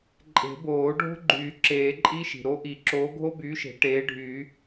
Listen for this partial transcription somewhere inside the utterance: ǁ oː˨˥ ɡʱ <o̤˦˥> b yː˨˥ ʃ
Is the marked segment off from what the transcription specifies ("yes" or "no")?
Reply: yes